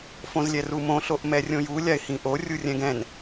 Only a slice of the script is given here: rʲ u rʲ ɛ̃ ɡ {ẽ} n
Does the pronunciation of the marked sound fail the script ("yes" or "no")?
yes